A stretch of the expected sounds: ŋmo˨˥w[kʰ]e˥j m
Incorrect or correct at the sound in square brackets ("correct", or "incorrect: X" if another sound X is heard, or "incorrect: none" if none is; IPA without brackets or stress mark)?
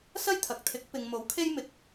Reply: correct